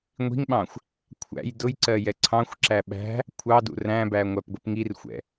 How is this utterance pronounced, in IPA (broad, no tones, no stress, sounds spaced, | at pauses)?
ŋʷ i̤ ŋ ɓ ɑ̃ xʷ | kʷʰ æ̰ j d ʊ j ǀ ɜ j ɛ ǀʰ ɑ̃ xʷ ǁ æ ɓ æ̤ | kʷʰ ɑ d ṵ r æ̃ b æ ŋʷ æ p ɡʷ ɪ p ŋ i r xʷ ɛ̰